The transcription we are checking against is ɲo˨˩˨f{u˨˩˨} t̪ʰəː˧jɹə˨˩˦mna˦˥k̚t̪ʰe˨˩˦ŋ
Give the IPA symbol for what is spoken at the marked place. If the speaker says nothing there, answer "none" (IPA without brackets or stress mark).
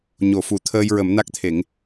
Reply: u˨˩˨